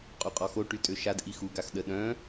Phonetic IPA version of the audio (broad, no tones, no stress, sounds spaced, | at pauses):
qʼ u qʼ ɔ x o ʈ y tʼ ø ʃ a d ʔ i x u ɡ a x ɗ ə ɗ œ̃